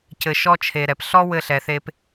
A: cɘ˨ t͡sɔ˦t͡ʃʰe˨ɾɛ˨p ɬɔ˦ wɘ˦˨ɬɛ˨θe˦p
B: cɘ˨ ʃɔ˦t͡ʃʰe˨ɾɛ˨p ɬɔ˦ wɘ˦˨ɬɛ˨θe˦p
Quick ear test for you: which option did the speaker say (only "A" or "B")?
B